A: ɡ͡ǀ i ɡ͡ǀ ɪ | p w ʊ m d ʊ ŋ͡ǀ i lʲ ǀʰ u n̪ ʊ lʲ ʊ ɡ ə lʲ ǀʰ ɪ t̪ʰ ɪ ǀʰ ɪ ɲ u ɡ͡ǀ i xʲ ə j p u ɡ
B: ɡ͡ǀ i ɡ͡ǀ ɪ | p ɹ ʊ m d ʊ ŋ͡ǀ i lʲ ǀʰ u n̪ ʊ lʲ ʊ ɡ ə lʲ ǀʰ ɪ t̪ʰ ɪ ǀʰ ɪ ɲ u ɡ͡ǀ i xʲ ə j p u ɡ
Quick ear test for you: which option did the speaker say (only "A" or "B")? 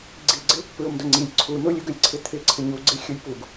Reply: B